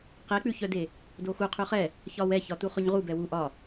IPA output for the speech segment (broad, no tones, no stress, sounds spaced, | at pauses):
q e k͡p ʉ ç œ d e | d o x u qʰ ʉ χ ɛ | ç ɒ w ɛ ç ɒ t u χ ʉ ɲ ʁ u b ɛ w u ʔ ɒ